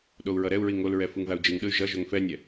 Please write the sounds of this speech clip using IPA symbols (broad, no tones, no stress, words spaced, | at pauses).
ɗou̯ɹʌɾɛu̯ɹi ŋolɹɛ fɯŋðau̯d͡ʒɯŋɗɯy̯ ʒʌʒoŋ fɛnʲɛ